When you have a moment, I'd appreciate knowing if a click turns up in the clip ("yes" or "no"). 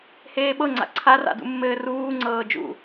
yes